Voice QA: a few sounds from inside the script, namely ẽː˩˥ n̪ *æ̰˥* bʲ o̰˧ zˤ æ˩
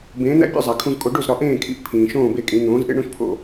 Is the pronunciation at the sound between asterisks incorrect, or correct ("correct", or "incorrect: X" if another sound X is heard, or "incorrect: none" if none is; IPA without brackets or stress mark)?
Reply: correct